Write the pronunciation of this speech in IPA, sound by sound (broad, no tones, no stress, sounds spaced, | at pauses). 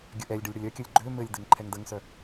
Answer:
ɡʲ ə ʔ ɛ lʲ ɖ ɘ lʲ ɽ ə lʲ œ kʲ ə lʲ ɡ͡ǃ ø m ɘ lʲ d ɘ ŋ ǃʰ ɛ ŋ d ə ŋ s œ